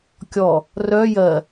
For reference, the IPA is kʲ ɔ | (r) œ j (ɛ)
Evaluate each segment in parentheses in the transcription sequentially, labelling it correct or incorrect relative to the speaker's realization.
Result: correct, incorrect: ɜ

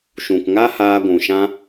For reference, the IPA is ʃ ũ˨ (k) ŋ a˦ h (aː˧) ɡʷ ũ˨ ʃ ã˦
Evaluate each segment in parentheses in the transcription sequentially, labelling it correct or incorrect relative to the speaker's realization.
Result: correct, correct

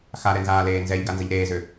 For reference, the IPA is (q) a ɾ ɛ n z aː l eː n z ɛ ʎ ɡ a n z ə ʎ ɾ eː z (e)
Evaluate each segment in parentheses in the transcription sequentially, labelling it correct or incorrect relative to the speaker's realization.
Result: incorrect: x, incorrect: ø

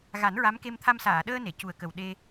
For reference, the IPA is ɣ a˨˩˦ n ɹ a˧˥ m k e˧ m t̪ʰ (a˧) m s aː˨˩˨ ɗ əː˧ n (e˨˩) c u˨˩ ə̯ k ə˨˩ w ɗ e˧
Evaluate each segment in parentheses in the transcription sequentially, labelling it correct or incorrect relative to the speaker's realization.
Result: correct, incorrect: e˨˩˨

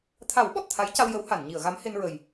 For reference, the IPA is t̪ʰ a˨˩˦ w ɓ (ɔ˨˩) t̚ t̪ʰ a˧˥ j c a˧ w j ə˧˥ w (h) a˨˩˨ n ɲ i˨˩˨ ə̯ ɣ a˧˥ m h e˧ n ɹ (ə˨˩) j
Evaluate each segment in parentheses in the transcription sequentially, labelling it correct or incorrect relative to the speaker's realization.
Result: correct, correct, correct

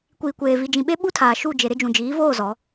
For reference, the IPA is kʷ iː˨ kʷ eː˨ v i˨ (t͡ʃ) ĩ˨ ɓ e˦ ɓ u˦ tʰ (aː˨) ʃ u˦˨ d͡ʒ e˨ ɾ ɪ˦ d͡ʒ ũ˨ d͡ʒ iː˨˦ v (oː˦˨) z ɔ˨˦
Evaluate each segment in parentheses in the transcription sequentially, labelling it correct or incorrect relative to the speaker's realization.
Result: incorrect: d͡ʒ, correct, correct

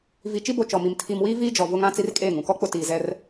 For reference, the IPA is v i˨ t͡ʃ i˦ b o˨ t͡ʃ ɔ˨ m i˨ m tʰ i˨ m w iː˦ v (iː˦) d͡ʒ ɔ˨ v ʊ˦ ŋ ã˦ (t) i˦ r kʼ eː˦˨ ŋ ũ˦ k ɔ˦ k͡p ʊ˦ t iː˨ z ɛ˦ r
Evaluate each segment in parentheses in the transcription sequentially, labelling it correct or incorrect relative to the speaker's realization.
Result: correct, incorrect: t͡s

